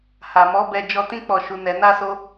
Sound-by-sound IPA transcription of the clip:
h a˨ m ɔ˨˦ b ɛ˧ d͡ʒ ɔ˧ t ĩ˦ k͡p ɔ˦˨ ʃ u˨˦ n ɛ˧ n a˦ s o˦

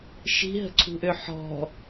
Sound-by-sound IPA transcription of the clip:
ʃ i̤ ɦ ə̤ ǀʰ ṳ ʔ ø ħ ɔ̤

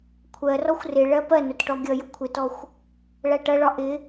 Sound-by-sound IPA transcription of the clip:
kʷʰ ɜ r ɔ xʷ r ɪ ɭ ɜ p ɜ n ʊ t ʈ ɔ ɡʲ ʌ j ʊ kʷʰ ɪ t ɔ xʷ | ɭ æ ʈ ʌ ɭ ɒ ʔ ɪ

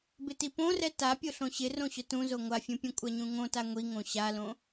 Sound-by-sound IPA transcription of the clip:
b ɪ t i p õ r ɛ t a pʲ o ɬ õ ɕ ɪ r õ ɕ ʊ t ũ z o ŋʷ a fʲ ũ pʲ ũ kʷʼ a ɲ ũ ŋ õ t a ŋʷ i ŋ õ ɕ a l õ

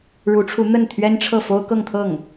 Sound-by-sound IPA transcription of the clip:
ɻ u˧˥ ʈ͡ʂʰ u˧˥ n̪ ə˥˩ n t̪ʰ ɥ ɛ˥ n ʈ͡ʂʰ ɤ˥˩ f o˥ ʊ̯ k ɤ˥˧ ŋ t̪ʰ ɤ˥˩ ŋ

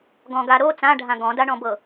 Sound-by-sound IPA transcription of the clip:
ɡ ɔ̃ ɡ a ɾ o t͡s ã ɖʱ ã ɡ ɔ̃ d a ɳ ɔ̃ b ɤ

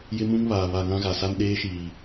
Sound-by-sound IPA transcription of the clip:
j ɪ˦ m ũ˦ ŋ β aː˨ β a˨ ŋ ã˦ ɣ a˨ s a˦ n ɗ eː˦ ʃ iː˨

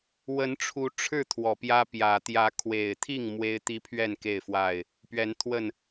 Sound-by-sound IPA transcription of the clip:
w ə˨˦ n ʈ͡ʂʰ u˨˦ ʈ͡ʂʰ ɻ̩˥˨ t̪ʰ w ɔ˨˩ p j ä˦ p j ä˨˩ t̪ j ä˨˦ kʰ w e˨˩ ɪ̯ t̪ʰ i˥˨ ŋ m w e˦ ɪ̯ t̪ i˦ pʰ ɥ ɛ˥˨ n k e˥˨ ɪ̯ f w a˥˨ ɪ̯ | p ɥ ɛ˨˦ n t̪ʰ w ə˥˨ n

